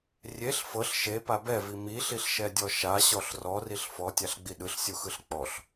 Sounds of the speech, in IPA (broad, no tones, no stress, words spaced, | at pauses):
rʲeɬ fɤɬ ʃepa bɛvi miɬiɬʃɛdʲɔ ʃaɕɔɬ rɔriɬ fɔtʲaɬɡ͡bi ɗɯɬsʲuxɯɬ k͡pɔɬ